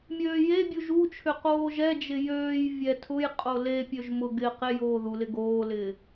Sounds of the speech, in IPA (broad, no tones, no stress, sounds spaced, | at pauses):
mʲ øː j e bʲ u ʒ u t͡ʃʰ ʏ q oː ʒ ɛ d͡ʒ ɪ j øː j vʲ ɛ tʰ ʊ j qʼ o l e pʲ ø ʒ m ʊ ɡ ɪ q ɪ j oː ð u l ɪ ɡ oː l ɪː